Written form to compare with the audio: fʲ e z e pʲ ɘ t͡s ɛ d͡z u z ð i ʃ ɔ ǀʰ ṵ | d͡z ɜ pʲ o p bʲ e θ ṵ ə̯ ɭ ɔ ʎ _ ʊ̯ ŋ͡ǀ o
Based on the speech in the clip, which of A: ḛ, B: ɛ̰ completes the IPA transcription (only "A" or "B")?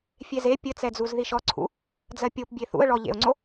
A